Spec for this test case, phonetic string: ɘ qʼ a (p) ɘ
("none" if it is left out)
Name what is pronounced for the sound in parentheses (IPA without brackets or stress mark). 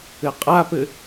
p